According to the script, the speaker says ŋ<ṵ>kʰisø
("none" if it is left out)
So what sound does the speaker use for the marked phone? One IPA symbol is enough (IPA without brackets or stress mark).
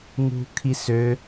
ṳ